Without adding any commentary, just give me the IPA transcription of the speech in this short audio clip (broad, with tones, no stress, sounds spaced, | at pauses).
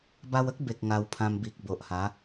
b a˧ w ə˦ k̚ b e˨ k̚ ŋ a˧ w pʰ ã˧ m b i˨ k̚ b o˨ ʔ h a˨˦